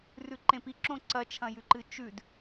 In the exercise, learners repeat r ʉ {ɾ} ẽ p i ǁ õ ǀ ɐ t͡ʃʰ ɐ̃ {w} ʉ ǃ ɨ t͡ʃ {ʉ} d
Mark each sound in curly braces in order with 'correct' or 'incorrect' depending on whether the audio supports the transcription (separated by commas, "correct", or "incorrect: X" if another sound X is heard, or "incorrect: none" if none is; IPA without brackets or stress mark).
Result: incorrect: ǃ, incorrect: j, correct